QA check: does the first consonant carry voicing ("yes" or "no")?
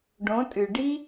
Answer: yes